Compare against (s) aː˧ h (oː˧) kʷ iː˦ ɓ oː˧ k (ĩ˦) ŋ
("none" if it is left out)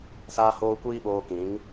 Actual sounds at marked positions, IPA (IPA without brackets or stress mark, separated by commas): s, oː˧, ĩ˨˦